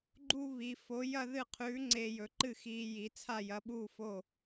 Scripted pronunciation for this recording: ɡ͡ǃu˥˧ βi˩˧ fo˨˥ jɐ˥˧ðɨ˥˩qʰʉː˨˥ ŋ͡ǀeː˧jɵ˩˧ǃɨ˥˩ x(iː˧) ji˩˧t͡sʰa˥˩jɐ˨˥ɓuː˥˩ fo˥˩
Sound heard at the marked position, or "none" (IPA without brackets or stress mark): iː˧